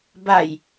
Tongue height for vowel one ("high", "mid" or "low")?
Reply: low